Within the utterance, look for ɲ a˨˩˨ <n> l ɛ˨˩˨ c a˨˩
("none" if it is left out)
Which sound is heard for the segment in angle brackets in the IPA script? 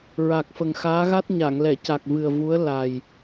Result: ŋ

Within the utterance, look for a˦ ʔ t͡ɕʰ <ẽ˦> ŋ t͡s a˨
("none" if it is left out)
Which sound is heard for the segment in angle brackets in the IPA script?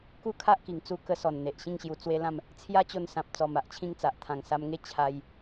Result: ĩ˦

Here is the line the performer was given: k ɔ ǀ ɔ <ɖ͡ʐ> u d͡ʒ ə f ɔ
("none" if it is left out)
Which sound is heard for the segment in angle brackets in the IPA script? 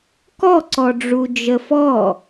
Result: ɖ͡ʐ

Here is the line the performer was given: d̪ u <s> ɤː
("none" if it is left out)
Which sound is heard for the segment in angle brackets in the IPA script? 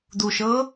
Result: ʃ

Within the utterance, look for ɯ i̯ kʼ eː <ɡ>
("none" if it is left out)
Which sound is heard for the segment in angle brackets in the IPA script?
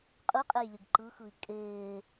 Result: none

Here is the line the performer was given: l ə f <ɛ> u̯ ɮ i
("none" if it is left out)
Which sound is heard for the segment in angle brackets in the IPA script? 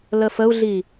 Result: ə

